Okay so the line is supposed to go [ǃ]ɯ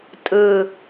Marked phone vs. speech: incorrect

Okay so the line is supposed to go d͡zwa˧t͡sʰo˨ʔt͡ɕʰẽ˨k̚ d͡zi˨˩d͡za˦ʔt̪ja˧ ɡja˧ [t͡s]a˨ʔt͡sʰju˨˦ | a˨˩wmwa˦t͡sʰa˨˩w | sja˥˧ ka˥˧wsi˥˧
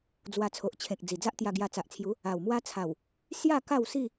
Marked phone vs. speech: correct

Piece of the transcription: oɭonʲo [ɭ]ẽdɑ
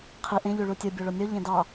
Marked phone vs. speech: incorrect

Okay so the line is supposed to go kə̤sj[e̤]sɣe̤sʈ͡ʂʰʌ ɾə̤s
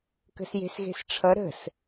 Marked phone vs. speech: correct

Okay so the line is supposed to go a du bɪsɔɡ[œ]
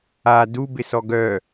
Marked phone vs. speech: correct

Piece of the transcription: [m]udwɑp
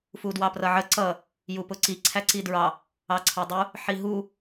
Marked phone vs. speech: incorrect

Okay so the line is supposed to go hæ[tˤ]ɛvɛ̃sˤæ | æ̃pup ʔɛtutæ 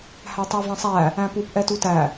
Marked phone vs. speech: correct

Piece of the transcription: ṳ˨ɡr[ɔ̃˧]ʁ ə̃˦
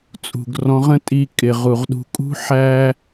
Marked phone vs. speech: correct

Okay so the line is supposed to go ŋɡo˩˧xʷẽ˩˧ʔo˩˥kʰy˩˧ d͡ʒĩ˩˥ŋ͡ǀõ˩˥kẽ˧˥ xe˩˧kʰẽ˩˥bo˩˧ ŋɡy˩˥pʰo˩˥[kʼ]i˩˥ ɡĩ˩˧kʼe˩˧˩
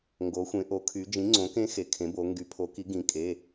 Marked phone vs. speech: incorrect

